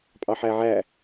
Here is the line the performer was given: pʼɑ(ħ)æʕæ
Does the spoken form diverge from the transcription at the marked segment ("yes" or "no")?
no